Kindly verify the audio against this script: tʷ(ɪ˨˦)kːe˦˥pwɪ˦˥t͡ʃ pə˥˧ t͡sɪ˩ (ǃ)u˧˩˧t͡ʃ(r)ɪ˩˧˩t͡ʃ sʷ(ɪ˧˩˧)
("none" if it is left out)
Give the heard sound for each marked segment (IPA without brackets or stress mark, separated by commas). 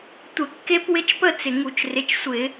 ɪ˧˩˧, ŋ, r, ɪ˧˩˧